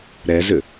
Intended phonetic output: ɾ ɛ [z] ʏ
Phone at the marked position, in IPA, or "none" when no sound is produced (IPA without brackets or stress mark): z